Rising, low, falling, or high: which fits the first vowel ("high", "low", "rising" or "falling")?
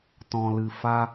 low